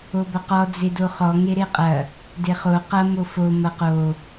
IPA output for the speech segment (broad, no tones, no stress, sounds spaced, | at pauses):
o b ɐ q ɔ d͡z e d o χ ɔ ŋ e ɾ e qʼ ɐ | d e χ o q ɐ m o f o m ɐ q o